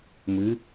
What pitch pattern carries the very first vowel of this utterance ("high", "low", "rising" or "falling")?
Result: rising